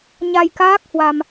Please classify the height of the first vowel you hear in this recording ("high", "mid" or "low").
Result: low